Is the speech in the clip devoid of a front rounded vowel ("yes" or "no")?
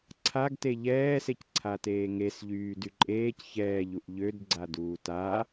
no